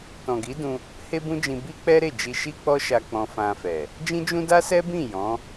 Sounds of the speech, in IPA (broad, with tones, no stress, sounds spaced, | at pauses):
t ɔ̃˨ ɡ i˨˦ d ũ˧ | h e˦ b ũ˦ d͡ʒ ĩ˧ b i˦ k͡p ɛ˦ ɾ e˦˨ d͡ʒ i˧ ʃ i˦ k͡p ɔ˦ ʃ a˧ k͡p ɔ̃˧ f ã˧ f ɛ˨ | d͡ʒ ĩ˦ d͡ʒ ũ˦ d a˦ s ɛ˦ b ĩ˦˨ j ɔ̃˨˦